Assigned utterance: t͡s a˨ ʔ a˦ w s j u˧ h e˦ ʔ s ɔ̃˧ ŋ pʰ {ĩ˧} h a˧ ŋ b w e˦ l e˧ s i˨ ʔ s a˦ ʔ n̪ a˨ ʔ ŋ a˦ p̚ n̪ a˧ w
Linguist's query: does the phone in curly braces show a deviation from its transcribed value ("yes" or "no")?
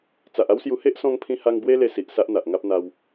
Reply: no